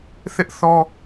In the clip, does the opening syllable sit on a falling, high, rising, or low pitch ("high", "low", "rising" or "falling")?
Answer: high